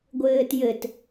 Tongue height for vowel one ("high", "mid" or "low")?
mid